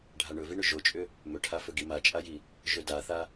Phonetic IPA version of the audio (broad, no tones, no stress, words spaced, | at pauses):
ɖʱaɳɵviɳʏ ʒot͡ʃʼʏ | mɵʈʰafɵɡi mat͡ʃʼaji | ʒɵdaθa